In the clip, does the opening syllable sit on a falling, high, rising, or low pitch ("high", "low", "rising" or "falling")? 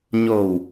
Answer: low